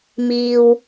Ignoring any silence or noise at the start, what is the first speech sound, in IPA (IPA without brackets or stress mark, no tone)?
m